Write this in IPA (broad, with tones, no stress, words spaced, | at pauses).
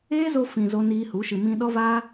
eː˦zo˧fĩ˨ zo˧niː˧hu˨˦ ʃɨ˨mĩ˧ɗɔ˦vaː˦